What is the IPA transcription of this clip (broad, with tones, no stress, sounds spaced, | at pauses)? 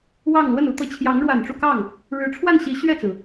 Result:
w ɑ˥˧ ŋ l w ə˥˩ n u˥ t̪ ɤ˧˥ t͡ɕʰ j ɑ˧˥ ŋ ɻ w a˨˩ n ʈ͡ʂ u˥˧ k ɑ˥˩ ŋ | ɻ ɻ̩˧˥ ʈ͡ʂʰ w a˥˩ n ɕ i˧˥ ɕ ɥ ɛ˥˩ t͡s ɹ̩˩